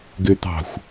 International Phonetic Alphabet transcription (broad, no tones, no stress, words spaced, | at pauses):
ɡøt̪ɑ̤xʷ